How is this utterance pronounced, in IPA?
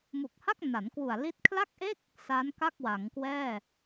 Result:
mu˨˩k̚ha˥˩k̚na˩˦n kwu˨˩a̯li˦˥t̚ kʰla˥˩k̚ʔe˥˩k̚ | sa˦˥nka˥˩k̚ wa˩˦ŋkwɛː˥˩

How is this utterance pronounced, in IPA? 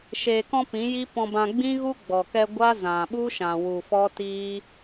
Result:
ʃeː˨kɔ̃˧ pĩ˨˦ji˦pɔ̃˧bã˧ ɡ͡bĩ˦ɣu˦ ɡ͡bɔ˨kɛ˧ ɡʷa˦zã˨ɓu˦ʃã˨ wu˨fɔ˦tiː˦

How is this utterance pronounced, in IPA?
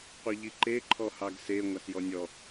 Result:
qʷɤʎiǃe ǃʰɔhɑɡse ŋʷasjɔnʲɔ

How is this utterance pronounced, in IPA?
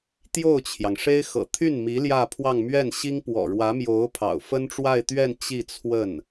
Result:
t̪jo˥˩ʊ̯t͡ɕʰjɑ˩ŋʂe˥ɪ̯ xɤ̰˨˩t̪ʰy˥˩nmi˧˥ ljä˥˧pʰwɑ˥˧ŋ mɥɛ˥˩nɕi˥ŋ pwɔ̰˨˩ɻwä˧˥mjo˧˥ʊ̯ pʰɑ̰˨˩ʊ̯fə˥nʈ͡ʂwa˥˧ɪ̯t̪ɥɛ˥˧n t͡ɕi˥˧t͡sʰwə˥˩n

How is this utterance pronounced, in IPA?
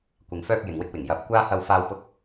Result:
kʷɪ˨ŋfœː˧k̚ jɪ˨ŋwɪ˧k̚wɪ˨˩ŋ jɐ˨˥p̚ kʷaː˥ hɐ˧wfaː˧w pʊ˧k̚

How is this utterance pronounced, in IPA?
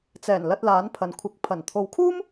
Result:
t͡sɛː˨˩nlɐ˧t̚ laː˨˧npʰɐ˨nkʷʰɪ˨˥k̚ pʰɐ˨˩n t̪ʰo˧w kʰuː˥m

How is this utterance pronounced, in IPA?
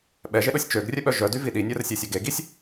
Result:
ɓɛʒeɗosʲ t͡ʃøɡrʲœɓœ ʒœdyvi ɗinʲœrsʲesʲɔɡ eɡisʲ

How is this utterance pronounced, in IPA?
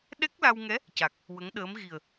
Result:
ɗɛ˦˥k̚la˧wŋɛ˧˥ | ca˨˩k̚ | wə˧˥ŋɗəː˧˥mɣi˨˩ə̯

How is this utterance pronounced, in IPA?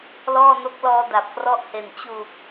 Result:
lɔː˥˩no˦˥k̚lɔː˧ da˨˩p̚krɔ˥˩ʔhe˨˩n t͡ɕu˨˩k̚

